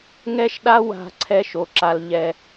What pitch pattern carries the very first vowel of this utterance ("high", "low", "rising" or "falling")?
high